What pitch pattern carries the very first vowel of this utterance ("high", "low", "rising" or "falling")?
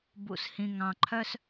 low